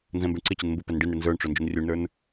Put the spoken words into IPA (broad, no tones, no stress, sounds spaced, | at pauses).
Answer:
n z ɛ̃ m b ɪ ɳ ǀ ɪ t͡ɕ ɪ n m b ʊ p ɛ n ɖ i n ɽ ɪ n z ə˞ ɳ ʈ͡ʂ ʊ n d͡ʒ ʊ n rʲ u ɳ n ə˞ n